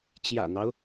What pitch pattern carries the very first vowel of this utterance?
low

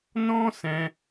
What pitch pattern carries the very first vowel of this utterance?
high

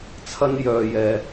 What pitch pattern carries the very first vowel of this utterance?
high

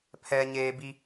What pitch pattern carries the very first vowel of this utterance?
high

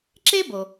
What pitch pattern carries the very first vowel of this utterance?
high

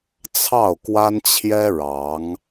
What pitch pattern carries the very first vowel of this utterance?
falling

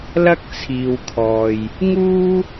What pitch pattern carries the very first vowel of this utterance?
high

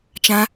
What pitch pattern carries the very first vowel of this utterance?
high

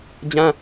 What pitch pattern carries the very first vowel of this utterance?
high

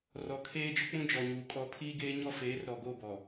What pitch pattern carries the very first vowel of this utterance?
low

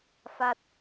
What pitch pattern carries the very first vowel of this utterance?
falling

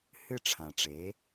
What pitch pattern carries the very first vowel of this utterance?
falling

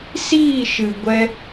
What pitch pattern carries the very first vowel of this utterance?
falling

